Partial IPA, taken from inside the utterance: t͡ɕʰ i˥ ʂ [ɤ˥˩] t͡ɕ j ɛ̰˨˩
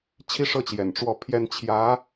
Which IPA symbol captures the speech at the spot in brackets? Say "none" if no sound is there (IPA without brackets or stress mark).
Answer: ɤ˥˩